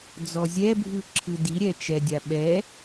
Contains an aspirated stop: yes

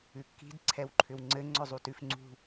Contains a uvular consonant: no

